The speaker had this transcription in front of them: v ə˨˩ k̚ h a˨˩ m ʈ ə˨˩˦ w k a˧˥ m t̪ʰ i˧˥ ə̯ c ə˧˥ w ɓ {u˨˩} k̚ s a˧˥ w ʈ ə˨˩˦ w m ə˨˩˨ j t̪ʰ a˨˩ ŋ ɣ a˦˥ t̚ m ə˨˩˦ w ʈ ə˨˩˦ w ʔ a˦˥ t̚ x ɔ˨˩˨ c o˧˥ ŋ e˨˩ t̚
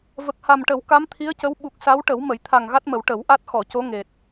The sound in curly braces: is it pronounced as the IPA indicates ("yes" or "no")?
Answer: yes